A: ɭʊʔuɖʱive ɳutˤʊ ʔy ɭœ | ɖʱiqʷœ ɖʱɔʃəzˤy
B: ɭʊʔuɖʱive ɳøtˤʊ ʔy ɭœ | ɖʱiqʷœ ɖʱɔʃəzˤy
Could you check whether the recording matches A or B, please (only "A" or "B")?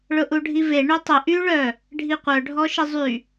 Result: B